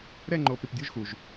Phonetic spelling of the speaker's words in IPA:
ɾ ɛ˥˧ ŋ͡ǃ oː˧ p ɾ i˧ p dʲ o˥ ʒ x u˧ ʒ

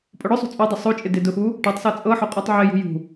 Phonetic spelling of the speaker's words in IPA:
pʼ ʊ ɽ ʊ sˤ ṳ t͡sʼ o dˤ ʊ sˤ o t͡ʃʼ ɪ d ɪ d ʊ x u | ʈ ɔ tˤ s ɤ t͡sʼ ɤ ħ ʊ qʼ u tˤ ʕ ɪ j ṳ j ṳ

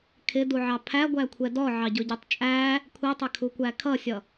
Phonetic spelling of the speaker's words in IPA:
kʰ ɪ d u ʕ ɑ pʰ æ ɡʷ æ kʷʰ ɛ d ɔ ʕ ɑ ɟ ʊ ɟ ɛ tˤ t͡ʃʼ æ | kʷʰ i tˤ ɪ kʰ u kʷ æ kʰ ʌ sʲ ʌ

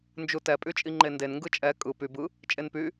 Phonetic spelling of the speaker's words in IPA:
n d͡ʒ u t ɛ pʼ y t͡ʃʼ i ŋ͡ǃ e n d e n ŋ ɡ ɯ t͡ʃʼ ɛ kʼ ɯ p y b ɯ | t͡ʃʼ e n p y

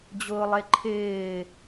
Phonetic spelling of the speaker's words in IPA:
d͡ʑ ʊː lˠ e ǃʰ ɪː

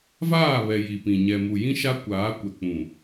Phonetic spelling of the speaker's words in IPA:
v aː˦˨ β ɛ˨ j i˨ p ĩ˨ ɲ ɛ˨ m u˨ j ĩ˦ ʃ a˦ kʷ aː˨˦ kʷ ɛ˨ k͡p ũ˨

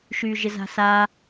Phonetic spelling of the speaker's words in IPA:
ʃ yː ʒ ɪ z a̤ s a

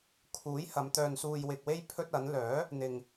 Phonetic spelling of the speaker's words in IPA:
kʰ uː˨˥ j h ɐ˨˧ m t̪ œː˧ n s uː˧ j w ɪ˨ k̚ w e˥ j pʰ ɵ˥ t̚ ɐ˨˥ n l œː˨˥ | n̪ ɪ˨ ŋ

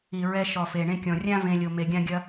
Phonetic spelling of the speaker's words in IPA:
i˨ ɹ ɛ˧ ʃ ɔ˨ f e˨ ɳ ẽ˧ kʲ ɔ̃˨ rʲ ã˦ v ẽ˧ lʲ o˧ m e˧ ɡʲ ã˦ ɡʲ ɐ˦

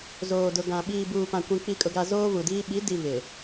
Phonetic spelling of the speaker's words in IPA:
z oː˨ d ʊ˨ ɡ ã˨ ɓ iː˨ b uː˨ p ã˨ kʷ ĩ˨ k͡p i˨ kʼ ʊ˨ ɡ a˨ z oː˦ β u˨ d iː˦ ɓ i˨˦ d i˨ β ɪ˨

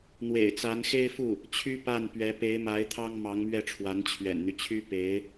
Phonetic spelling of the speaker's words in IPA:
n̪ w ḛ˨˩ ɪ̯ t͡s a˧˥ n x e˥ ɪ̯ f u˥˩ | t͡ɕʰ y˥ p a˥˩ n p ɥ ɛ˧˥ p e˧˥ ɪ̯ m a˧˥ ɪ̯ t̪ʰ ɑ˥ ŋ m ɑ˧˥ ŋ m ɥ ɛ˥˩ ʈ͡ʂʰ w a˧˥ n t͡ɕʰ ɥ ɛ̰˨˩ n n̪ y˦ t͡ɕʰ y˥ p e˧˥ ɪ̯

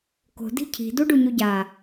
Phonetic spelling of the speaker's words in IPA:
k o̤ d i̤ cʰ i̤ d u ɖ u ɲ u ɟ a

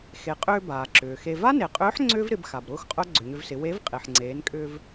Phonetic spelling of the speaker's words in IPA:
x e˩ qʼ ʏː˧ b aː˩ ǁ ʏː˩ x e˧ v a˥ n e˩ qʼ ʏː˧˥ ħ ŋ͡ǀ ʏː˥ v ɾ ɪ˩˧ b x a˩ b ɾ ʊː˥ x qʼ œ˥ ɡ͡ǀ ʏ˩ ɲ ʏ˧ v s ɪ˩˧ w e˧˥ v qʼ e˩ ħ ŋ͡ǀ eː˩˧ n kʼ ʏː˧ v

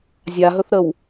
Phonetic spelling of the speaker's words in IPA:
zʲ a ɦ ɵ θ ɾ ə w

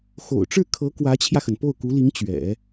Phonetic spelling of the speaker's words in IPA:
x o̰˨˩ ʊ̯ ʈ͡ʂ ɻ̩˥˩ kʰ ɤ˧˥ k w ä˧˥ t͡ɕʰ j ä˧ x ə˩ n p o˥˩ ʊ̯ k u˧˥ l i˧˥ ŋ t͡ɕ ɥ ɛ̰˨˩˦

